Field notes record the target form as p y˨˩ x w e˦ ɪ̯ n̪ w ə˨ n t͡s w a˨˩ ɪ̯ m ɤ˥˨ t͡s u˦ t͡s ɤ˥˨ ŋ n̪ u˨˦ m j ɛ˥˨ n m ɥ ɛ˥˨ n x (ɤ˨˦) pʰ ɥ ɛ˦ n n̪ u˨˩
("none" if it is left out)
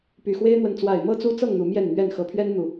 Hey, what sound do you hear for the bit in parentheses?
ɤ˨˦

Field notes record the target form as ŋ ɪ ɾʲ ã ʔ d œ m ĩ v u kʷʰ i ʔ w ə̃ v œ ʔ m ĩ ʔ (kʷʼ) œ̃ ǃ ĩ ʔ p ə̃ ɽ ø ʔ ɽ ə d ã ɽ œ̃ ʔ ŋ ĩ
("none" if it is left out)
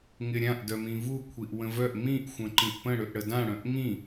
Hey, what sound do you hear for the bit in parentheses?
xʷ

